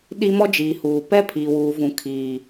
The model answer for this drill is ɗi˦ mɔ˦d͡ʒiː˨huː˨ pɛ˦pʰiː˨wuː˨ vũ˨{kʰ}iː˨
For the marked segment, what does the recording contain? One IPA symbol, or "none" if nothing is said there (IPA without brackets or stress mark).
kʰ